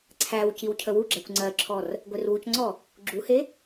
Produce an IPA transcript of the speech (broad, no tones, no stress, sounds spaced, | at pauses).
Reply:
ǀʰ æ w c i w cʰ ə w u ɡ͡ǁ æ kʷ ŋ͡ǀ ɜ ǁʰ ɔ r | ɡʷ e r w u c ŋ͡ǀ ɔ | ɡ͡ǁ u h e